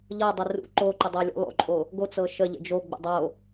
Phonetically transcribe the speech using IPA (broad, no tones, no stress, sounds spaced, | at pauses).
ʎ ɤ dˤ ə r ṵ ǃ o ǃ ə dˤ o lʲ ṵ lˠ o̰ ǃʼ o | ɡ o t͡s ɤ ʃ ə ʎ ə̰ d͡ʒ o ɡ͡b ə̰ dˤ o